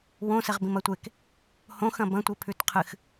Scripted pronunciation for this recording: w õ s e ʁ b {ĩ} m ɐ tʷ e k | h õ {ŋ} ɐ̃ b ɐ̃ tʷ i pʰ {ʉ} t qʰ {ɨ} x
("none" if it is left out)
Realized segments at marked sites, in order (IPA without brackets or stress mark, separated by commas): ĩ, x, ʉ, ɨ